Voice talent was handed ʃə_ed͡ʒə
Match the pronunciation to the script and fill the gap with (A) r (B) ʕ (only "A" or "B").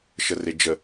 A